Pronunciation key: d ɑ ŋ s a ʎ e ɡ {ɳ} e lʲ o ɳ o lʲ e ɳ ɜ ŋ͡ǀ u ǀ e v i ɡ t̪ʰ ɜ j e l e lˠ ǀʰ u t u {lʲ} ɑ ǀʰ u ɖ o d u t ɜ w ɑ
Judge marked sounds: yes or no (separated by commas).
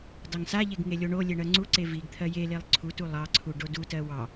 no, no